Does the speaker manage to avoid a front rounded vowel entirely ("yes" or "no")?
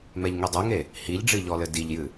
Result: yes